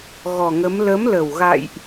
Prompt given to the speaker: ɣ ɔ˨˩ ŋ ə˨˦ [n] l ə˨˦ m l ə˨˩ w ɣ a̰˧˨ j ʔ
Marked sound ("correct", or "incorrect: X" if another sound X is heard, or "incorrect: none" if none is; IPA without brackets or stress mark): incorrect: m